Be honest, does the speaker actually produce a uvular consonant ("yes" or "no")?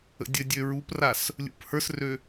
no